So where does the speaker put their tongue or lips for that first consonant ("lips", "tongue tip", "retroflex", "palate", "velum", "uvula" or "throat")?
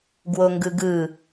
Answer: velum